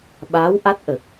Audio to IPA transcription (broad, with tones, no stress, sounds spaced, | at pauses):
ɓ aː˧˥ w ʔ a˦˥ t̚ ʔ ə˨˩ k̚